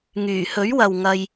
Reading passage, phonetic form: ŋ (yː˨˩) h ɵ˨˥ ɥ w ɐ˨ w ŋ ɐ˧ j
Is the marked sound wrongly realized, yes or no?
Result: no